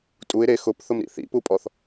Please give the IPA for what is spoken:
tʼ u ɪ̯ ɾ e x ʊ p θ ʊ m ɾ ḭ θ ḭ p u pʼ ɔ θ

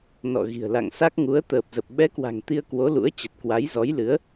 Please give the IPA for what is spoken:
n ɔ̰˧˨ ɣ i̤˨˩ ə̯ l a̰˧˨ ŋ s a˦˥ k̚ ŋ u˨˦ ə̯ t̪ əː˨˩ p̚ z ə˨˩ p̚ ɓ ɛ˨˦ k w a̤˨˩ ŋ t̪ i˧ ə̯ k w o˨˦ l ṵ˧˥ ə̯ t͡ɕ ə˨˩ t̚ k w a˨˦ j z ɔ˨˦ j l ɨ˨˦ ə̯

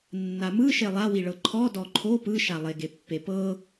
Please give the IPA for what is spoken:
nː a m ɯ ʃ e lˠ a w i ɭ ɤ ǃʰ ɔ d ɔ ǃʰ o p ɯ ʃ a lˠ e ɡ e pː e p ɤ

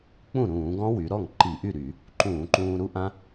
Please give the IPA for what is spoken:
k͡p ũ˥˩ ɾ ũː˧˩˧ ɡ ɔ̃˦˥ w y˩˧ ɾ ɔ˥˩ ŋ ǃ i˧˩˧ ʔ y˥˩ ɾ y˧˩˧ | ǃ ũː˧˩˧ ǃ ũː˧ ɾ u˦˥ ʔ ã˦˥

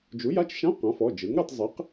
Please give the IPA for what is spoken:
d͡ʒ u˩˥ j a˧˥˧ t͡ʃ ʃ ã˧˥˧ q ã˩˥ f ɔ˩˧˩ d͡ʒ ɯ˩˥ ŋ ɾ ɛ˧ tˤ zˤ e˩˥ q

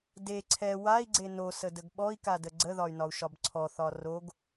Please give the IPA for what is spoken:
d e ǀʰ ɛ w a i̯ ɡ͡ǀ e n o s ə d ə ɡ ɓ ɔ i̯ k a d ə ɡ͡ǀ ə ð ɒ y̯ n ɒ u̯ ʃ ɒ b ǀʰ ɔ θ ɒ r o ɡ

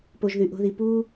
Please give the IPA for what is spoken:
p o˧ ʒ ð y˧ ʔ o̤˦ ð i˧ p uː˦

